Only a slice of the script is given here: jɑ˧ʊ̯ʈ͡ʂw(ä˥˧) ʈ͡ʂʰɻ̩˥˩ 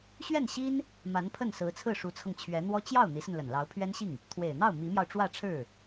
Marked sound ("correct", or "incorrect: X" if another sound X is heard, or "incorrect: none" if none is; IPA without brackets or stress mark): correct